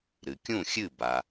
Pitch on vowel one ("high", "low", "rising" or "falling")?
low